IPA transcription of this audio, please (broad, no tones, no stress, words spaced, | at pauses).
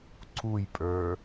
ǀujpʼə˞